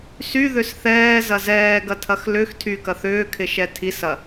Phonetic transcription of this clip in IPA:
s y ð ʏ s θ ɛː z ɐ z ɛː ɡ ɐ tʰ ɐ x l ʏ x tʰ y k ɐ θ ʏː kʰ ɪ ʃ ɛ tʰ i s ɐ

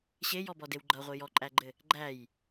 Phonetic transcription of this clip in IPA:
ɕ e j ɔ b ɔ d e w ɡ͡ǃ ʌ ʁʷ i j ɔ ǃʼ æ ɡ͡ǃ ɘ | ɡ͡ǃ æ j

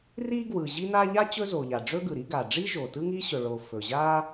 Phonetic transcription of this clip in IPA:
r i˥ ɡ w ɯ˩ ʑ i˥ n a˥ ʎ a˥ t͡ɕ ɵ˥ z o˩ ʎ a˩ ɖ͡ʐ ɵ˥ ɡ ɯ˩ ɾ i˥ ɡ a˩ ɖ͡ʐ i˥ ʒ o˩ t ɯ˥ ŋ i˥ ɕ ɵ˩ ɭ o˩ f ɵ˩ ʑ a˥

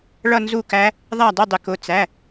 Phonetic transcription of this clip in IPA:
ɭ ʌ˥˧ n z u˥˩ k æ˦˥ | ðˤ æ˥˩ dˤ ɪ˥˩ dˤ ɪ˩˧ k ʊ˩˧˩ t͡s æ˩˧˩

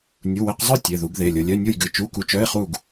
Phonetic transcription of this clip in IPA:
nʲ u˩˧˩ w e˧ q zˤ œ˥˨ tʲ e˩˧˩ ð u˨˩˦ ɡ ð e˩˧˩ lʲ o˧ lʲ œ˧˥˧ nʲ u˥˨ j ɡ ɨ˩˧˩ t͡ʃ u˧˥˧ k u˧ t͡ʃ œ˧˥˧ ɪ̯ χ u˥˨ ɡ

